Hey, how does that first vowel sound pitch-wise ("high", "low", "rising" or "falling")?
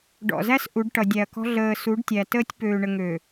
low